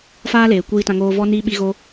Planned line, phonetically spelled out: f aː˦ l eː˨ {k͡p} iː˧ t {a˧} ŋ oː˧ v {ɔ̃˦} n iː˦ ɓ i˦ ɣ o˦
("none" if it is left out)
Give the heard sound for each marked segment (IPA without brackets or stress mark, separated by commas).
kʷ, ã˧, ɔ˦